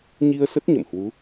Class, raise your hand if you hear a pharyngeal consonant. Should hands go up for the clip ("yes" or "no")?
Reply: no